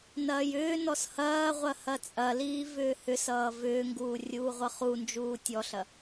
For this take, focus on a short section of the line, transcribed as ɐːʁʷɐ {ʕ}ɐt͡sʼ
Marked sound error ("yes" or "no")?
yes